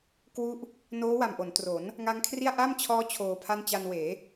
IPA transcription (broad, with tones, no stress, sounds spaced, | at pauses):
k w u˦˥ ʔ | n oː˦˥ w a˨˩ m ʔ o˩˦ n t r o˩˦ n | ŋ a˦˥ ŋ kʰ r i˥˩ a̯ ʔ a˥˩ m t͡ɕʰ ɔː˦˥ t͡ɕʰ oː˧ pʰ a˥˩ n t͡ɕ a˧ n w eː˩˦